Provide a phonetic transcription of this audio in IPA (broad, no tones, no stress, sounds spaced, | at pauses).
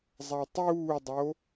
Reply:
zˤ a tˤ uː dˤ o